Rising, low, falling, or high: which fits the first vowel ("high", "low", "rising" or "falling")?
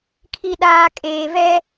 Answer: low